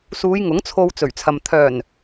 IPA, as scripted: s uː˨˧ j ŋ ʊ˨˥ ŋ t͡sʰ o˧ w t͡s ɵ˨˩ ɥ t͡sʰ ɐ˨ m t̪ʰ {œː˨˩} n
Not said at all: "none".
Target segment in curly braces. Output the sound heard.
œː˨˩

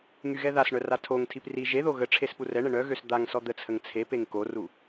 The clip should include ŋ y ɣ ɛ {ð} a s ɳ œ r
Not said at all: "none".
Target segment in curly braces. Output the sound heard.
ð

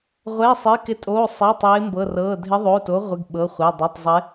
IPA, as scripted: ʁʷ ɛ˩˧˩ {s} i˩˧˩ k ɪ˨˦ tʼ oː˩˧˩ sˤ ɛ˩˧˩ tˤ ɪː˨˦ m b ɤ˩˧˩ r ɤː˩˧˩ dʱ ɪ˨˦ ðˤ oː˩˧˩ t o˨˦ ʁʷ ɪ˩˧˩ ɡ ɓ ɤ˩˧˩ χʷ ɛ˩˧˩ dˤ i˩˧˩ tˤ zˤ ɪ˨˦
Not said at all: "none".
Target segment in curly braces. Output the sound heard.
sˤ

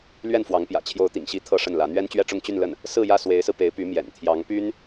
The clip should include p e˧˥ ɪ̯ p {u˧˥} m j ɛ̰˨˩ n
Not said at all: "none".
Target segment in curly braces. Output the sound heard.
y˧˥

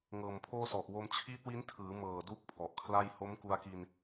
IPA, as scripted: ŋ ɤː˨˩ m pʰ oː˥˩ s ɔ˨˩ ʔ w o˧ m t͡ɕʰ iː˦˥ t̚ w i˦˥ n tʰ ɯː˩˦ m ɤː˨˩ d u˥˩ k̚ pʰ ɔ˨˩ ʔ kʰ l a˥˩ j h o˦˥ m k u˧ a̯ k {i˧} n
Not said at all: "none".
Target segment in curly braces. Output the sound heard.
i˧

